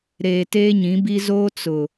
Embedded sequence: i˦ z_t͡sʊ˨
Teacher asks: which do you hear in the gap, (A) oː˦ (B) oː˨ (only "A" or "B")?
A